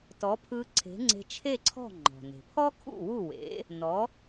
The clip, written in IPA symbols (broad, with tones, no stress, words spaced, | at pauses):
tɔ˩˥pʰɯ˧ǀʰe̤˩˥ ŋ͡ǀe̤˧t͡ʃʰe˥˩ǀʰɔ̤˥˩ ŋ͡ǃɔ̤˩ne̤˩pʰɔ˥kʰṵ˥˩ wu˥˩ wḛ˩˥ | nɔ˩˥